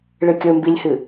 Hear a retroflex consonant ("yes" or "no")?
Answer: yes